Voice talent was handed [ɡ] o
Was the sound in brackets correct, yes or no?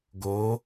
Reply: yes